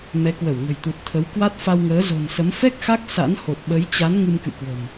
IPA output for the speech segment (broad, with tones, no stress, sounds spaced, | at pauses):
m ɛ˨˦ k w ə˧˩ w ŋ ə̤˨˩ j t̪ u˨˩ t̚ t̪ʰ ə˨˦ w k w a˦˥ t̚ f a˧ w ŋ əː˨˦ z o̤˨˩ n s ə˨˦ m f ɛ˦˥ k̚ x a˦˥ k̚ s a̰˧˥ n h o˨˩ t̚ ɓ ə˨˦ j t͡ɕ a˨˦ n ŋ ɨ˧ m k ɨ̰˧˨ k w ə̤˨˩ m